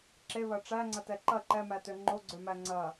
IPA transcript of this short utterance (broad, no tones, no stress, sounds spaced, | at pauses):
ǁ e β ɐ ʈ͡ʂ æ ŋ͡ǀ ɐ t ɛ ǃ ɐ ǃ ɛ m æ t ø ŋ͡ǃ o ɡ͡ǀ ø m æ ŋ͡ǀ ɐ